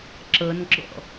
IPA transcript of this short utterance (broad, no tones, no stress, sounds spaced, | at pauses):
ǁ ɤ n ɡ͡ǁ ɔ̰